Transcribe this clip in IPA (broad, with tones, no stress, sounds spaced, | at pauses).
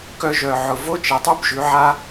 k œ˧ ʒ œ˨ ʕ ʊ˨ v o˦ t͡ʃ e˨ tˤ y˦ b ʒ ʉ˨˦ ʕ a˦